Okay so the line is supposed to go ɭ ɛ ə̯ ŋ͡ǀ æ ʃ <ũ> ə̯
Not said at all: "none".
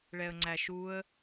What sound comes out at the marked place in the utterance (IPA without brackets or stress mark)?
u